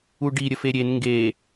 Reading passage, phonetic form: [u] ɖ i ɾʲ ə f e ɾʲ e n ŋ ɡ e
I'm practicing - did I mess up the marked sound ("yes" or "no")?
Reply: no